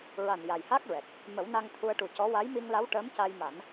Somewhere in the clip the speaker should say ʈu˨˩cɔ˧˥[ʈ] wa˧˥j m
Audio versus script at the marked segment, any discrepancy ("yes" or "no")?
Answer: yes